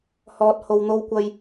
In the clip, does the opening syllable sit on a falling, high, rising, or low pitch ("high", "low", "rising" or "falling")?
low